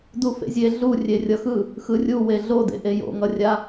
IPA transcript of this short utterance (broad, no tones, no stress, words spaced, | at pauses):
dufḛzʲe ɮu rʲerʲʌxɯ | xɯrʲuwe ɮodḛʔe jo̰ŋʌrʲa